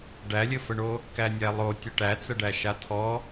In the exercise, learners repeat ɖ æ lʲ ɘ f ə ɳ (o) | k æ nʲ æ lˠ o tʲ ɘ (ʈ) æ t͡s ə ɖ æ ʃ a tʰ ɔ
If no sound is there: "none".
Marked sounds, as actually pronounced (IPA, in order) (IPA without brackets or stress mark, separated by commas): o, ʈ